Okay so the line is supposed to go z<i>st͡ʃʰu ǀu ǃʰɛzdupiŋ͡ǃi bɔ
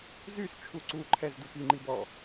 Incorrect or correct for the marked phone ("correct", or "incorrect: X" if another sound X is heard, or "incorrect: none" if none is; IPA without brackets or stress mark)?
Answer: incorrect: y